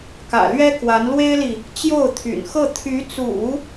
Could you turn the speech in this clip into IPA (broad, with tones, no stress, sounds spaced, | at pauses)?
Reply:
k ä̰˨˩ l ɥ ɛ˥ k w a˧˥ n l w e˥ ɪ̯ l i˨ | t͡ɕ j o˥˩ ʊ̯ t̪ʰ y̰˨˩ n x ɤ˥˩ t̪ʰ y˧˥ t͡s ṵ˨˩˦